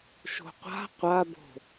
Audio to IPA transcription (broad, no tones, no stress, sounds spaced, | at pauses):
ʃ o̤ qʷ a̤ qʷ a b o̤